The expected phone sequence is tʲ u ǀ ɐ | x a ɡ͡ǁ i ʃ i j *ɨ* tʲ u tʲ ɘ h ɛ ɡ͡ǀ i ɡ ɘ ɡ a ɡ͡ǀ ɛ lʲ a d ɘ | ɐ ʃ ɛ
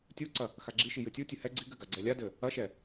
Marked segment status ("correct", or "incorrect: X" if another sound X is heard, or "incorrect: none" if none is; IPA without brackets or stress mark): correct